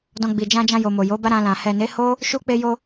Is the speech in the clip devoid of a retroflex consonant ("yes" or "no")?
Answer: yes